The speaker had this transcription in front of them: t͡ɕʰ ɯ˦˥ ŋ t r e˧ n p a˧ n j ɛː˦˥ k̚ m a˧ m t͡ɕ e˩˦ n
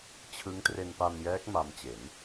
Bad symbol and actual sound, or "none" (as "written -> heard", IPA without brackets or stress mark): none